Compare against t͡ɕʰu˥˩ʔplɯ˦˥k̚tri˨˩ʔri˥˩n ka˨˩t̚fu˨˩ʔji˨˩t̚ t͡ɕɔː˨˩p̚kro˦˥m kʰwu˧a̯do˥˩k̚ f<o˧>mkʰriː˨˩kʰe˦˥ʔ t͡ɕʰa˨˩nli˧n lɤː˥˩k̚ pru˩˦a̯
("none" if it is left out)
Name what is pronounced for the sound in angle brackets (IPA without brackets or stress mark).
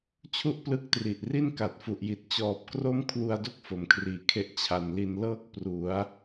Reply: o˨˩